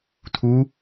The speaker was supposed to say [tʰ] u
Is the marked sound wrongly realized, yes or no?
no